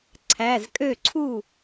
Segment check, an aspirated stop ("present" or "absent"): present